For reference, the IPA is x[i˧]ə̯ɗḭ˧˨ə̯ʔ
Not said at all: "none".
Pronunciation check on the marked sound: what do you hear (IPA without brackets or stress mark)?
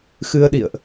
ɨ˧